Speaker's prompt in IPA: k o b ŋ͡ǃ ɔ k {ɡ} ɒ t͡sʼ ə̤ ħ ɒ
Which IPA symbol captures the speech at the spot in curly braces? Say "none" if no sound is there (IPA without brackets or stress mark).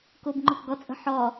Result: ɡ